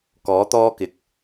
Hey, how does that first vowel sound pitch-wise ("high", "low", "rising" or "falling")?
rising